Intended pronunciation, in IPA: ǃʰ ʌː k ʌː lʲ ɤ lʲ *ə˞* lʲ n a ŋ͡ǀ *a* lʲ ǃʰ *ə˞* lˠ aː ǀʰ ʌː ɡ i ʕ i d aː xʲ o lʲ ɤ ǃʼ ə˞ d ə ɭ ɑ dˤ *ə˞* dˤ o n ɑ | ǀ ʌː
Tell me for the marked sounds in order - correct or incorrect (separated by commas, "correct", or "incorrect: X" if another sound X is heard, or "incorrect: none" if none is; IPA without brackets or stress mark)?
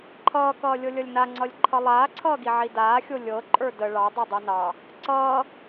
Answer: incorrect: ʌ, incorrect: ʌ, incorrect: ʌ, incorrect: ɤ